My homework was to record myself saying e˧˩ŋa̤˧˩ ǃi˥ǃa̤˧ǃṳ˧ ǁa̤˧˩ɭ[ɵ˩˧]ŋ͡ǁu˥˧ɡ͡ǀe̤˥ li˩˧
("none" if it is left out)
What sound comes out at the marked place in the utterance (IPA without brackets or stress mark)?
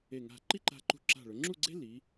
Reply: ɵ˩˧